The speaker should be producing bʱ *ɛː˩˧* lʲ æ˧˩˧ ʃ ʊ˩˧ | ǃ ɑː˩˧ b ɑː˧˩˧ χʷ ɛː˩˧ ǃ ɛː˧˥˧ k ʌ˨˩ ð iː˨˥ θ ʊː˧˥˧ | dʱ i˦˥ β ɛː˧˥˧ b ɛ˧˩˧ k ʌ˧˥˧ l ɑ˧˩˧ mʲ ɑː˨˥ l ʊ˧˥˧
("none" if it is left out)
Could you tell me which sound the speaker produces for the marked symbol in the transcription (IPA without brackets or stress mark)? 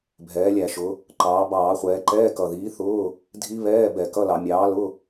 ɛː˩˧